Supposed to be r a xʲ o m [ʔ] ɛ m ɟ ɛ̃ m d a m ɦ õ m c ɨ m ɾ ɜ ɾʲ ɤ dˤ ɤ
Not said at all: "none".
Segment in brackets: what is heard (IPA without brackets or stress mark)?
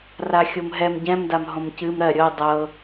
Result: ɦ